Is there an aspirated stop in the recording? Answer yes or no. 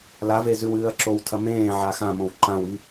yes